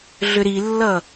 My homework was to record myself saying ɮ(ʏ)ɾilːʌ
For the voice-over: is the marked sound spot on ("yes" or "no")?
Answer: yes